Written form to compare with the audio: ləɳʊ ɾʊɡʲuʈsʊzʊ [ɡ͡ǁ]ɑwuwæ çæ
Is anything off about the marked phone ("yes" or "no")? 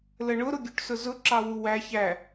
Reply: yes